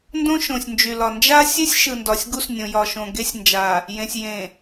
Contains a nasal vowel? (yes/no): yes